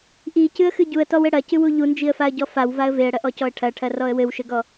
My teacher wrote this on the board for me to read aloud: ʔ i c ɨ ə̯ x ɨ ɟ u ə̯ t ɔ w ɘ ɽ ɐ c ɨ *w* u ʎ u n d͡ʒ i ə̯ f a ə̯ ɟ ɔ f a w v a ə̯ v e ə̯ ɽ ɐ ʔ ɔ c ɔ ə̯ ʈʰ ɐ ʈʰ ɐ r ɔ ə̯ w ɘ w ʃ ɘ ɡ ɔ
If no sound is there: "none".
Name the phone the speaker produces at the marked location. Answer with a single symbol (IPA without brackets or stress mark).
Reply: w